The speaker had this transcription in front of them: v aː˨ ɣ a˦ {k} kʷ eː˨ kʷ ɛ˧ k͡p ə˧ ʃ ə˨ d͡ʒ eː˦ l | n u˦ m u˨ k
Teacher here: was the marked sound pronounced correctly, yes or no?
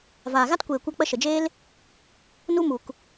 no